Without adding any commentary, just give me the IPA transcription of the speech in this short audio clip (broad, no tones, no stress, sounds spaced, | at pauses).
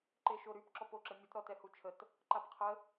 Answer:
ǃ e ʃ o ɾ y p ǁ ɔ p o ǁ ə mʲ ə t ɾ ɔ t ɛ h u t͡ʃʰ ə t | ǃ a p qʰ ə